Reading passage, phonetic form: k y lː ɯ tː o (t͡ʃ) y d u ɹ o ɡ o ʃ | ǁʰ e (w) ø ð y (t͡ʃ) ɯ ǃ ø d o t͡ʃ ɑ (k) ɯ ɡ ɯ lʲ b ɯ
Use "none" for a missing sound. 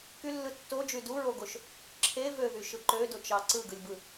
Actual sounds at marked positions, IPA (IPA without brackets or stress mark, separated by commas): d͡ʒ, v, ʃ, ǀ